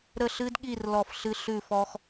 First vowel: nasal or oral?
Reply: oral